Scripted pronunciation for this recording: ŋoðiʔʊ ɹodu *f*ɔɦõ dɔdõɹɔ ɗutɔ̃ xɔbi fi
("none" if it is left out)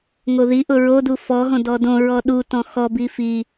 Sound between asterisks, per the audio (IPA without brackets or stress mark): f